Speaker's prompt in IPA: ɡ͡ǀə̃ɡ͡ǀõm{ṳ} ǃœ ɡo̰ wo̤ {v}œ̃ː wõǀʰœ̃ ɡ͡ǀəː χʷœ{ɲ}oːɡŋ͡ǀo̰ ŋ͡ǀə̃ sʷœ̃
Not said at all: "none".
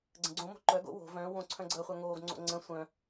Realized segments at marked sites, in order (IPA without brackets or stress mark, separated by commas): o̤, v, ŋ